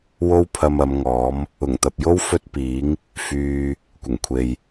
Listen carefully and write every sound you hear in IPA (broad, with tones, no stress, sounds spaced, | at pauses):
w o˥ w pʰ ɐ˧ m ɐ˨˧ m ŋ ɔː˨˥ m | ʊ˨˩ ŋ t̪ ɐ˨ p̚ j o˥ w f ɵ˥ t̚ p iː˨˥ ŋ | f yː˧ | kʷ ɪ˨˩ ŋ kʷʰ e˨ j